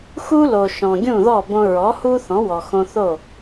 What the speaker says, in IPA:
x u˥ l o˩ ʃ ɔ̃˩ ɡʲ ũ˥˩ ð ɔ˥˩ b õ˧ ɹ ɔ˩˥ h u˥ θ ɔ̃˩˥ w ɔ˩ x õ˧ θ o˥˩

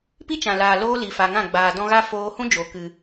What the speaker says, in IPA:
p i˦ t͡ʃ ã˨ l aː˨ l oː˦ l i˨ f a˨ ŋ ã˦˨ ɡ͡b aː˨ d ɔ̃˧ ɣ a˦ f oː˧ h ũ˦ d͡ʒ o˨ k ɨ˨

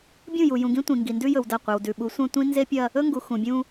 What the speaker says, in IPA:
bʲ ũ˦˨ j u˨ j ũ˨ ɡ ĩ˦ tʷ ĩ˨ ŋ ɡ i˨ n d ʉ˦ j ɵ˨ w d ɐ˦˨ qʷ e˨ w d ʉ˨ ɓ u˨˦ sʷ ɐ̃˦ tʷ ĩ˦ n z e˦ pʲ ɐ˦ | ɵ˦ ŋ ɡ u˨ x ũ˨ bʲ ũ˦

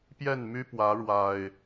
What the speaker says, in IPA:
p j ɛ˥˨ n m y˦ p w ä˨˦ ɻ w a˨˩ ɪ̯

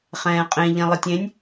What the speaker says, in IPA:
χ ɛ̃ː qʼ ẽ ʎ ẽ lˠ ə tʲ ẽ nʲ

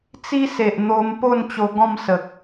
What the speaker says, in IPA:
t͡s i˦ s e˨ ʔ n̪ o˧ m p o˥˧ n t͡ɕ o˧ ɡ ɔ̃˥˧ m s ə˨ k̚

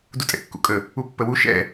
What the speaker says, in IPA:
d u tʼ ɛ̰ kː ṵ kʼ ə | u pː ə w u ʃ ɛ̰

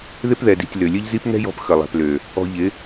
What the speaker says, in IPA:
ð ɪ˦ p ð ɛ˨ d i̤˨ tʲ l ø˨ lʲ ə˦ ʎ z i˦ p ŋ ɛ̤˦ j ɔ̤˧ p x ə˨ lˠ ɛ̤˨ p l ø˨ | ɔ̤˧ ʎ ɪ˨˦

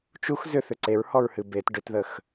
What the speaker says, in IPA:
t͡ʃ u x z ʏ θ ʏ ǀ e ɹ h ɔ ɹ h ɨ b e t ɖ ʏ t ð ə x

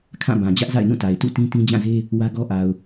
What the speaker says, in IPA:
kʰ ã˦˨ b ã˨ d͡ʑ ä˦ ʔ z a̰˦˨ ɪ̯ n ũ˦˨ t a˨ ɪ̯ t ṵ˦˨ t ĩ˦ t ĩ˦ d͡ʑ ã˦˨ z e˦ | w ä˦ ɡ ɔ˦ ʔ a˨ ʊ̯

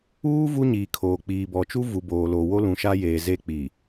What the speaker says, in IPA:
uː˦ v u˦ ɲ iː˨ kʰ oː˨ k͡p iː˨ b ɔ˨ t͡ʃ u˦ v u˨ b oː˨ l o˨ w o˦ l ũ˨ ʃ a˦ j eː˨ z e˦ k͡p i˨

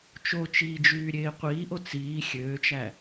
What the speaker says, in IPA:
t͡ʃ o t͡ʃ iː d͡ʒ yː ɾʲ eː qʷ iː ʔ o t͡s iː xʲ øː t͡ʃ æ

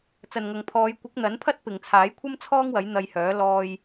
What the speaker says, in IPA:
t͡s ɐ˨ n ŋ ɐ˨ ŋ pʰ ɔː˨˧ j kʷ ɪ˨˥ k̚ n̪ ɐ˨˥ n pʰ ɐ˥ t̚ p ɪ˨ ŋ t͡sʰ aː˨˥ j kʷʰ ɐ˥ m t͡sʰ ɔː˥ ŋ w ɐ˨˥ j n̪ ɐ˧ j h œː˨˥ l ɔː˧ j

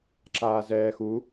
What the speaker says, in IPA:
ǁ aː z ɛː x u

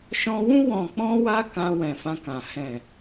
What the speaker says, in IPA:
ʃ ɔ̃˧ w ũ˦ w ɔ̃˧ k͡p ɔ̃˦ w a˦ k ã˧ w ɛ̃˨ f ã˧ k ã˨ h ɛ̃˨

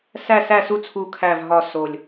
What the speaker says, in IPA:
s æ˥˨ s æ˥˨ s u˥˨ t͡sʰ u˧˩ kʰ æ˧˩ v ɦ ɒ˧˩ s o˧˩ lʲ

